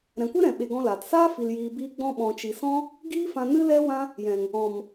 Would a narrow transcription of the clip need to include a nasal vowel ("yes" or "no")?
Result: yes